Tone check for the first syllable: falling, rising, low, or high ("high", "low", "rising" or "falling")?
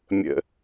low